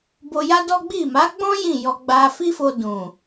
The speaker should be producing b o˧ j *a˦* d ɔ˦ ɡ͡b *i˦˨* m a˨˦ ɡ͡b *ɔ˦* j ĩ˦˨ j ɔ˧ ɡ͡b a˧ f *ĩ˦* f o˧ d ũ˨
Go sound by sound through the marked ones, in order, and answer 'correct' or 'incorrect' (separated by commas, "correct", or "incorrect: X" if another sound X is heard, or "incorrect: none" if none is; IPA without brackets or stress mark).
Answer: correct, correct, incorrect: ɔ̃˦, incorrect: i˦